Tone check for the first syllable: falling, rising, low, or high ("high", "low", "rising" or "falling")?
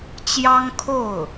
high